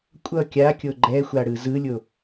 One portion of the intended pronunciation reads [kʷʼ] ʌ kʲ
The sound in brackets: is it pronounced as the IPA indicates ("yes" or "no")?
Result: yes